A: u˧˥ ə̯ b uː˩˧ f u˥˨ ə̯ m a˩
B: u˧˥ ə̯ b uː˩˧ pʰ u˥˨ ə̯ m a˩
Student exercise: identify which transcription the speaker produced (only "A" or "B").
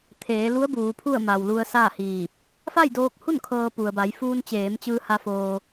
B